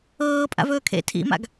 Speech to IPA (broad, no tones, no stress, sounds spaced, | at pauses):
ɤː pʼ a̰ v ɵː kʰ ḛ tʰ ḭ m a̰ ɡ